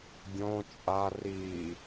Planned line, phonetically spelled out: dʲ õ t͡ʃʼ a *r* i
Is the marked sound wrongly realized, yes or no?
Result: no